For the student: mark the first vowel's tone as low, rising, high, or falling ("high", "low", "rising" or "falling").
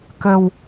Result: low